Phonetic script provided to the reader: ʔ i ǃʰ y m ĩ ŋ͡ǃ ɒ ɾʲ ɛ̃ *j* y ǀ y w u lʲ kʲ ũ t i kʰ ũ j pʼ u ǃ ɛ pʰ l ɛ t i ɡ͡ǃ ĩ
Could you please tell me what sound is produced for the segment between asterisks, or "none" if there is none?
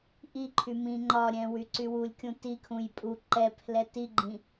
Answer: w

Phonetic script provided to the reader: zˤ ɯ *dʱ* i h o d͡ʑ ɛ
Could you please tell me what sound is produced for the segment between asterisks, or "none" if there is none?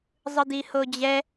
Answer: d̪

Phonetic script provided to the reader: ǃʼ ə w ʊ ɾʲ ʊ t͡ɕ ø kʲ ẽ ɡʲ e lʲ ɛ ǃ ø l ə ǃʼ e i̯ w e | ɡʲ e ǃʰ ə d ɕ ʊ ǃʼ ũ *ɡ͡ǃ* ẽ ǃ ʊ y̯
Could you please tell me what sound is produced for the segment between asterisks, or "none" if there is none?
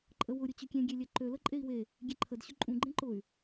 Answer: ɡ͡ǃ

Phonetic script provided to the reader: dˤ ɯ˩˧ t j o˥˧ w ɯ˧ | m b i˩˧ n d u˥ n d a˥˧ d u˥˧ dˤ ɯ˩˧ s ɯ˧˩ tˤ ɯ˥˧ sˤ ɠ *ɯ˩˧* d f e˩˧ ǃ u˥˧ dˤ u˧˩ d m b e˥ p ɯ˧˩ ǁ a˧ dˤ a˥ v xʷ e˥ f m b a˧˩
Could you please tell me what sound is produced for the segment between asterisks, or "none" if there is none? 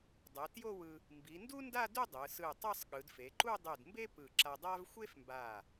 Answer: ɯ˩˧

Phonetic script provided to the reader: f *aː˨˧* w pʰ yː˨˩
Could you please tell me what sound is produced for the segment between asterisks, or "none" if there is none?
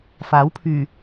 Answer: aː˨˥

